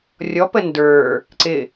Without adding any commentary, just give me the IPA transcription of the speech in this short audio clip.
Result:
rʲ ɔ p ə n d ə˞ | ǀ ɪ

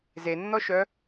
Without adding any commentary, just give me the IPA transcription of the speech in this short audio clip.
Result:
z e nː ɔ ʃ œ

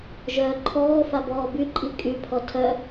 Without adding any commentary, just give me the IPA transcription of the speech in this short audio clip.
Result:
ʒ œː ǃʰ ɔː f a b ɔː b y ǃʼ i kʼ y pʰ ɔ tʰ œ

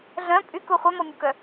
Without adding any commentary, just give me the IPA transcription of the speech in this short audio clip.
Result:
ɮ œ̃ pʼ y k u χʷ œ m ɔ mʲ u k œ

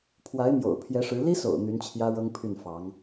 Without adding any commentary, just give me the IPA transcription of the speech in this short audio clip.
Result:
pʰ w a˧˥ ɪ̯ m j o̰˨˩ ʊ̯ pʰ j ɛ˧˥ ʂ ɻ̩˧˥ l i˥ s o̰˨˩ ʊ̯ n̪ y˧˥ n t͡ɕʰ j ä˥ ɻ ɤ˥ ŋ pʰ y˥˩ n f ɑ˧˥ ŋ

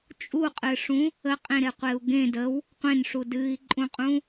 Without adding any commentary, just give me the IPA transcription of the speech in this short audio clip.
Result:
t͡ʃʼ u qʼ ɨ ʂ ũ | ə qʼ ẽ ɾ e qʷ e u̯ ɡ ẽ d ə w | qʷ ẽ n ʂ u d ɨ i̯ ǃʼ ũ qʼ ũ

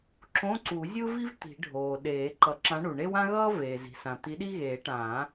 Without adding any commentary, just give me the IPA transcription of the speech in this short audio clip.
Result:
ǁ õ˧˥˧ ǀ u˨˩˦ zʲ ɯ˥ v i˥ v t̪ i̤˨˩˦ ɖʱ oː˩ ɗ eː˨˩˦ ǃ ʌ˨˩˦ ǁ ã˨˥ ɳ u˩ ɳ e˥ w ã˥ ɣ ʌː˥ v eː˩ z i̤˩ s ã˩ t̪ i˨˥ ɗ i˥ ɣ eː˨˩˦ ʈ ãː˨˩˦

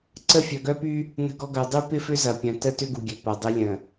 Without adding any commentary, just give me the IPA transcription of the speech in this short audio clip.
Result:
ǀ ə˦˨ fʲ œ˨ ɡ œ˦ p y˦ | n ə̤˦ ɡ ɔ˦ ɡ œ˨˦ dˤ y˦ p ɪ˦ f ʏ˦ z ɐ˨ pʲ œ̃˨ t ə˦ t ʏ˦ ɡ u˨ ɡʲ ø˨ p ɐ˨ dˤ ɪ˦ lʲ ə̃˨

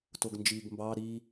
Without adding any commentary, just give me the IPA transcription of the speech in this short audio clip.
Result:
t o ɡ n d͡ʒ iː ɡ m b ɑ ɾ i

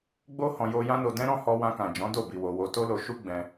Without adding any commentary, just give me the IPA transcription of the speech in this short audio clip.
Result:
ɡ͡b o˦ h ɔ̃˧ j o˧ j ã˦ n o˧ d ɛ̃˦ ɾ ɔ̃˦ h ɔ˧ w ã˧ k ã˨ d͡ʒ ɔ̃˨˦ d o˦˨ b i˧ w o˧ w o˧ t o˦ l o˧ ʃ u˦ ɡ͡b ɛ̃˧

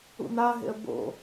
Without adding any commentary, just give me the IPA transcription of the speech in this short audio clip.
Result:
ṵ n̪ a ɦ ḛ ə̯ b o̰

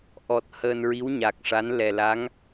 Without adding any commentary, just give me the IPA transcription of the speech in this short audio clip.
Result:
ʔ ɔ˨˩ t̚ h əː˧ n ɹ i˧˥ w ɲ a˨˩ k̚ ʂ a˧˥ n l ɛ˨˩ l a˧˥ ŋ

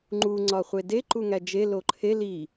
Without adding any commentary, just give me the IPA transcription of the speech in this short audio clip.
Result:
ŋ͡ǃ u ŋ͡ǀ ɒ χʷ e d e ǃ u ŋ æ d͡ʒ e l o ǃʰ e l i

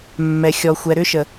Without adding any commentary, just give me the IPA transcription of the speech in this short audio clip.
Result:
mː ɛ˨ xʲ ɔ˨ xʷ ɛ˨ ɾ ʏ˦ ʃ ə˨

